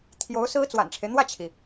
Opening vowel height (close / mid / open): mid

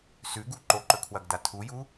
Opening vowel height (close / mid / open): close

